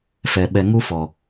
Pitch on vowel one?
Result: low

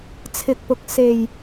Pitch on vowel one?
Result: low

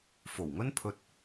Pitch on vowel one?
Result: low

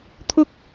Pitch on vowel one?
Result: high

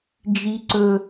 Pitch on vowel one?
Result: low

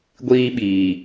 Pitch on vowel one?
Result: high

